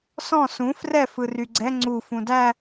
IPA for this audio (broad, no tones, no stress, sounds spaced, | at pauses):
s ɔ̃ s ũ f r ɛ f ɯ r y ɡ͡ǀ ɛ ŋ͡ǀ u f ũ d æ